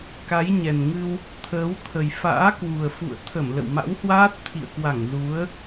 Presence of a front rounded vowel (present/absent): absent